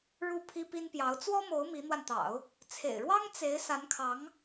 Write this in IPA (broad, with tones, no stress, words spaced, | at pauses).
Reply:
ɻu˥˩pʰi˥pi˥npjɑ˧˥ʊ̯ t͡swɔ˥mo˧˥ʊ̯ mi˧˥n̪wa˧nt̪ɑ̰˨˩˦ʊ̯ | t͡sʰḛ˨˩ɪ̯ɻwɑ˥ŋ t͡se˧˥ɪ̯ sa˧˥nkʰɑ˧˥ŋ